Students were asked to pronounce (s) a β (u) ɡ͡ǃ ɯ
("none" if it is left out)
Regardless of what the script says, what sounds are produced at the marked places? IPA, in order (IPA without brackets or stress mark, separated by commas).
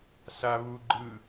s, u